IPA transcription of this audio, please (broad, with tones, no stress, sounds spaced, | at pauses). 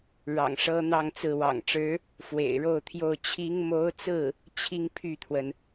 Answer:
ɻ ɑ̰˨˩ ŋ ʂ ɤ˥ n̪ ɑ˥˧ ŋ t͡s ɹ̩˥˩ w ɑ̰˨˩ ŋ ʈ͡ʂ ɻ̩˧˥ | f w ḛ˨˩ ɪ̯ ɻ o˥˧ ʊ̯ t̪ʰ j o˥˩ ʊ̯ t͡ɕʰ i˧˥ ŋ m o˧˥ ʊ̯ t͡s ɹ̩˥˩ | t͡ɕʰ i˥ ŋ pʰ y˥˩ t̪ʰ w ə˩ n